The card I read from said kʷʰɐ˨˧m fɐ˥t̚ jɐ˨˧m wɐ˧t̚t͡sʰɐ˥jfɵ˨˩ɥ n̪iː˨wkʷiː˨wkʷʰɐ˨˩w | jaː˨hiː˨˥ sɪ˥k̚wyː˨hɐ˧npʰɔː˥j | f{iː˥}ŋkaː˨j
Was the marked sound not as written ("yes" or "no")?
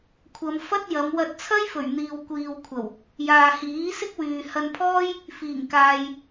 yes